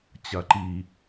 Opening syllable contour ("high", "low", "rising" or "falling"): low